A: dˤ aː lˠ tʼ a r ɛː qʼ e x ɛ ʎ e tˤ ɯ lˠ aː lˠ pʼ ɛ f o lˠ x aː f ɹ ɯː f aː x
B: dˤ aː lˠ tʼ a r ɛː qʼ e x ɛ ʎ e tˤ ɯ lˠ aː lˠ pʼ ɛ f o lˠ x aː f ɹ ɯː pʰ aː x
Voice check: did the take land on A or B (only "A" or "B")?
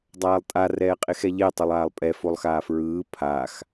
B